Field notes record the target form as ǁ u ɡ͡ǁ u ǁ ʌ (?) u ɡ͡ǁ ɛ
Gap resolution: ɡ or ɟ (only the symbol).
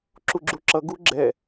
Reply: ɡ